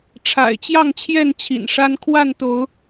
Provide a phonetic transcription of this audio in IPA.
ʈ͡ʂʰa̰˨˩ɪ̯t͡ɕjɑ˥˨ŋt͡ɕʰjɛ˥˨n t͡ɕʰḭ˨˩nʂa˦n kʰwa˥˨nt̪o˨˦ʊ̯

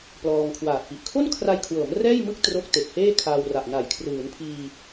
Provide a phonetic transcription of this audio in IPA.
plɔː˧ŋkʰwaː˨˩t̚pi˨˩ʔ kʰo˥˩nkʰra˧jkʰwɤː˩˦m rɛː˥˩jmɯ˥˩k̚ tro˦˥k̚te˨˩k̚heː˥˩ kʰaː˧wra˨˩ʔna˨˩j kʰrɯː˩˦npʰiː˧

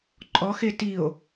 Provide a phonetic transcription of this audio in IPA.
ǃʼɔxe tio̯

